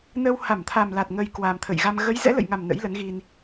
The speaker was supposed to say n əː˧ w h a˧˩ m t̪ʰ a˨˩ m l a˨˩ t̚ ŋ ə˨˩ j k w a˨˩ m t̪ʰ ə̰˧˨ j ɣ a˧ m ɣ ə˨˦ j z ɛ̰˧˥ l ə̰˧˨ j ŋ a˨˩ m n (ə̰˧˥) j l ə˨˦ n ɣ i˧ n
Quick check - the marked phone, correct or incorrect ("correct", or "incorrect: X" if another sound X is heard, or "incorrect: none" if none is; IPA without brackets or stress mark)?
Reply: correct